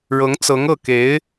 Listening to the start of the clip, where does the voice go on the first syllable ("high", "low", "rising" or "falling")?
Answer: rising